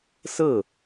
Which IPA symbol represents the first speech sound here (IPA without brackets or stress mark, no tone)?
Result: s